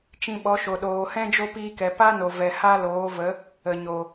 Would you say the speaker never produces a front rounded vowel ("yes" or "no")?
yes